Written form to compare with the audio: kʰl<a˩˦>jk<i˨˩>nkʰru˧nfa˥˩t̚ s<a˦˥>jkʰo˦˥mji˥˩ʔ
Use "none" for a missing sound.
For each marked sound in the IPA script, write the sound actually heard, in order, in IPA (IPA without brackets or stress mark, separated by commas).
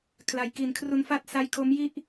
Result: a˩˦, i˨˩, a˧